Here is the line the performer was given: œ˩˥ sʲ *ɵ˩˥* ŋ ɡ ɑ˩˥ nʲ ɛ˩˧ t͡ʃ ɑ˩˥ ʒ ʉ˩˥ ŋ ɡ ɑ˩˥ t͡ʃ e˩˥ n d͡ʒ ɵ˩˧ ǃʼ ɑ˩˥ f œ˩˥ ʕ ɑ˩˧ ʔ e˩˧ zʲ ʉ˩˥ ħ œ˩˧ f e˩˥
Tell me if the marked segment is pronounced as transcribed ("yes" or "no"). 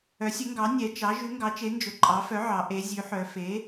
yes